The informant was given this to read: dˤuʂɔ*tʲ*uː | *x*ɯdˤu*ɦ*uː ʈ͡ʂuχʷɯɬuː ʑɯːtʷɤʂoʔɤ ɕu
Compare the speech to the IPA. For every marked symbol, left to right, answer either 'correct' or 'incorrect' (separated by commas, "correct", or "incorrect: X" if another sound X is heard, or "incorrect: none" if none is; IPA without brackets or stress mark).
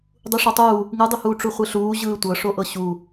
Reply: incorrect: tˤ, incorrect: ŋ, incorrect: h